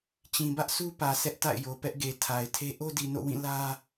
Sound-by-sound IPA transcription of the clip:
t͡ɕĩ˨bä˦ʔsʰu˦pä˨ sʰɛ˦ʔ ta̰˦˨ɪ̯jo˨pɛ˦ʔɡe˨ tʰa˨ɪ̯tʰe˦ ʔo˦di˨no̰˦˨wĩ˦˨ lä˦

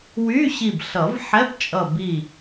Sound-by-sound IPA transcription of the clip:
wy˧˥˧ɕi˧˩b ɬʌ˨˩˦v ħɛ˧˥˧pt͡ʃʼʌ˧˩ bi˧˩

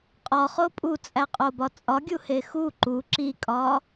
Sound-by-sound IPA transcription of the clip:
qʼɒχo pʼut͡sʼæqʼobɒ t͡sʼɒɡʲuhe xu ǃu ǁikʼɒ

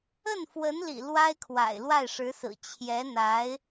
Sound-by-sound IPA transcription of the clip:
ə˥˩nfwə˧˥n lḭ˨˩ lwa˥ɪ̯kʰwa̰˨˩ɪ̯ lwa˥˩ɪ̯ʂɻ̩˧˥sɹ̩˨˩ t͡ɕʰjɛ˧˥n̪a˧˥ɪ̯

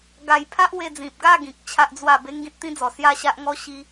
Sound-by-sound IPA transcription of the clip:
ɡa˧jpʰa˦ʔ we˧d͡zĩ˨p̚ɡa˥˧ɡĩ˨k̚ t͡ɕʰa˦ʔd͡zwa˥˧ be˦ŋɡĩ˦t̚t̪ĩ˦d͡zɔ˨˩ sja˥˧ɕa˦ʔŋɔ˦ ɕi˧

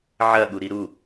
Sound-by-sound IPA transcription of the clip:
ʕɐɠuɾi ɾu

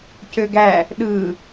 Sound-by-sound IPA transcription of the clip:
cøɡæ | ɗɯ

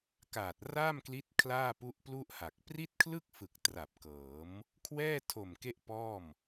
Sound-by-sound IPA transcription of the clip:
kaː˨˩t̚raː˥˩mkli˦˥t̚ kʰlaː˥˩pu˦˥ʔplu˥˩ʔha˨˩k̚ pri˥˩t̚kʰlɯ˥˩k̚fɯ˨˩k̚ tra˨˩p̚kɤː˩˦m | kʰwɛː˥˩tʰo˨˩m ke˥˩ʔpɔː˥˩m

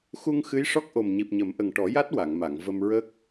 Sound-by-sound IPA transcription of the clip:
xu˧ŋ xɨ˧˥jʂɔ˦˥k̚ ʔo˨˩mɲi˨˩p̚ɲə˨˩˦mʔə˨˩ŋ ʈɔ˨˩˦ja˦˥t̚ wa˨˩˨ŋma˨˩˨ŋ və˧mɹə˦˥k̚

